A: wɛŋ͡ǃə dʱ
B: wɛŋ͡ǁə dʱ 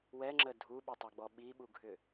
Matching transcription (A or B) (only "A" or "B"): B